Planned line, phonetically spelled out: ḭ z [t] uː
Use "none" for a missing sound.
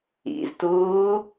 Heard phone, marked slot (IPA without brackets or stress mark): t